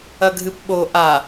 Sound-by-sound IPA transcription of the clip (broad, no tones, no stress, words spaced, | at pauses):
ɐɡʱɨpɓo ʔa